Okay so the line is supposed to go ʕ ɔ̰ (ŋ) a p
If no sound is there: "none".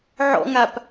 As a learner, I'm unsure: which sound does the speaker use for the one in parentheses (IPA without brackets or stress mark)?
ŋ